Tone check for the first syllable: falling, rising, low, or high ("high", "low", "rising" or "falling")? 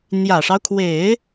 low